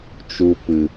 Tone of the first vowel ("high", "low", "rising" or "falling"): low